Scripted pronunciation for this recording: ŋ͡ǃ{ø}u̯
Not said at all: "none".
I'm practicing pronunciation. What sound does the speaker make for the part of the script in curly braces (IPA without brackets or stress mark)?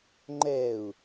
ɛ